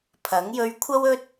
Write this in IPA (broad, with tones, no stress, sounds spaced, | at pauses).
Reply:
pʰ ɐ˨˥ ŋ j ɵ˧ ɥ kʷʰ ɐ˥ w ɵ˥ t̚